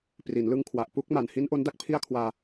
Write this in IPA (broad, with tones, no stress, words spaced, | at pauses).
pri˩˦nlɯ˦˥ŋkʰwa˨˩ʔ pu˦˥k̚ ma˨˩n hi˦˥nʔo˦˥nda˦˥k̚ pʰi˥˩a̯kʰwaː˧